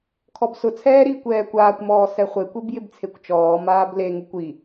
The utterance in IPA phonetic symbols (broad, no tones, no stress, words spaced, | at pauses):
kʰɔbsʊt͡sʰɛː ɾiːkʷɛːkʷaːkʷmɔː sɛχʷekʷeb jɪbt͡sʰekʷt͡ʃɔːmaːb leŋukʷ i